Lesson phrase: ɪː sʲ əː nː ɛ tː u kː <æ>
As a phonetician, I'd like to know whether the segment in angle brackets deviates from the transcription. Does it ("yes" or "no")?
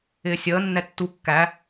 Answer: no